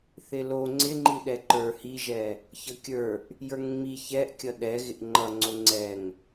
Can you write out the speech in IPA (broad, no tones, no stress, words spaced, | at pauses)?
θɪlo ŋ͡ǀɪŋ͡ǃi ɗɛǃə˞ hiʒɛ | çʌkʲə˞ʔ | jə˞ŋŋ͡mi çɛʔkʲʌ ɗɛ ɣɪʔŋ͡ǃʌŋ͡ǀo ŋ͡ǀɛŋ